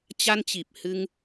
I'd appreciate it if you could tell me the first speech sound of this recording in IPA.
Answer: t͡ɕ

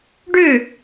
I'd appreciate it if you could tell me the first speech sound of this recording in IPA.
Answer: ɖ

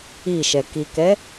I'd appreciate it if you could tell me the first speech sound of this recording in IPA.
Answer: i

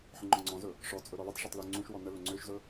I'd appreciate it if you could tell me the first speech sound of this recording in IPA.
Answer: ħ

